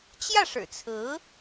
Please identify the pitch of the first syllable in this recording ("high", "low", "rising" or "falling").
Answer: falling